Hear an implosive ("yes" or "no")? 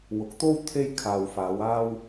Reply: no